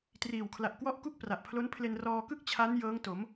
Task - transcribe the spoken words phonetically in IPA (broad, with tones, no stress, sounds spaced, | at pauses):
t r iː˨˩ w kʰ l a˨˩ ʔ k w ɔ˦˥ ʔ k u˥˩ k̚ p r a˨˩ ʔ pʰ l o˦˥ n pʰ l e˧ n r ɔː˧ k ɯ˥˩ k̚ t͡ɕʰ a˦˥ n j ɤː˦˥ ŋ t o˩˦ m